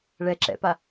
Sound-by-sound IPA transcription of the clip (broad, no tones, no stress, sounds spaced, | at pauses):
ɭ ɛ ǁ ɛ̰ p a